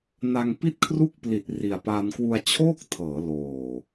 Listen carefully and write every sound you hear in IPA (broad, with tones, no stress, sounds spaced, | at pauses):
n a˧ ŋ p i˥˩ t̚ kʰ r u˥˩ k̚ p l i˨˩ t̚ r i˨˩ a̯ p a˧ n k w u˧ a̯ t͡ɕʰ oː˥˩ k̚ tʰ ɤː˩˦ l oː˨˩